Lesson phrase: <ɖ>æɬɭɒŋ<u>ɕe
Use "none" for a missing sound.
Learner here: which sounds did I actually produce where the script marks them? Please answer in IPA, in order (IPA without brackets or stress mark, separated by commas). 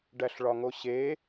ɖ, o